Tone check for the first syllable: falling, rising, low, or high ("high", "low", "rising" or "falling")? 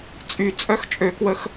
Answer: low